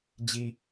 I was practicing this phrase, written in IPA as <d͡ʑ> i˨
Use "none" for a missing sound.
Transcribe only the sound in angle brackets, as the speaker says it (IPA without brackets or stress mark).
d͡ʑ